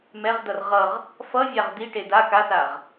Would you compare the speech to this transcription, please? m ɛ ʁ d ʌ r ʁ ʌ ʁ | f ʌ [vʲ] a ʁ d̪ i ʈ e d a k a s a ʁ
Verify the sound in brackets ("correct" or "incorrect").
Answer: correct